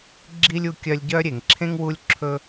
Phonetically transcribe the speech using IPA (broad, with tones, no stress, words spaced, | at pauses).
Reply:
ɡ͡ǁi˥lʲ u˦kʲœ˦lʲɟœ˥ ɾʲe˩ŋǁʰẽ˥ŋ wu˦lʲǁʰɵ˦